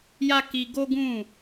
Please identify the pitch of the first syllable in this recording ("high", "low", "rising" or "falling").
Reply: high